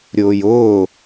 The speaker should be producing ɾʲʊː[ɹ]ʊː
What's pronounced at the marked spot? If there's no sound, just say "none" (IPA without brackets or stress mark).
j